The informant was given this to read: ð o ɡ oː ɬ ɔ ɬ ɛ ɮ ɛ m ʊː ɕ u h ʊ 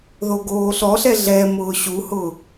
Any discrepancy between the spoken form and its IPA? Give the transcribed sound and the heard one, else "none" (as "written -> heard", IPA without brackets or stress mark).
none